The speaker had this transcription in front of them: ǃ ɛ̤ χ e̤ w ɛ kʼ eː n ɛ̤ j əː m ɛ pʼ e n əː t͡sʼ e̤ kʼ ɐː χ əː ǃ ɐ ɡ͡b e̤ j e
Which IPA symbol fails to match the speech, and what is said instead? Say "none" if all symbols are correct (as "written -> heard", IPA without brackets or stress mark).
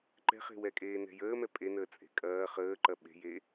ɡ͡b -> ɓ